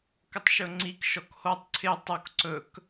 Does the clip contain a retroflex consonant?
no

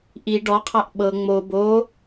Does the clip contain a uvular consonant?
yes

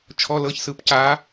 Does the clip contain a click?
no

